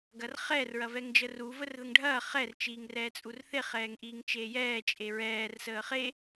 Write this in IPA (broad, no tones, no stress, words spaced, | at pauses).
ɡɐrχɛr ɹɐvɛŋd͡ʒəːru vərðəŋɖʱɐː χɛr t͡ʃiːŋrɛːt͡sʼurθe χɛːŋʔiːŋt͡ʃeːjɛː t͡ʃʼeɹɛːr səːχe